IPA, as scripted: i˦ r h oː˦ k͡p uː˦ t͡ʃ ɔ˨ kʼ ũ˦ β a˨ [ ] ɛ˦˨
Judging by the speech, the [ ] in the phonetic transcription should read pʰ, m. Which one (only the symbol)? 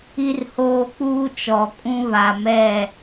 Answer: m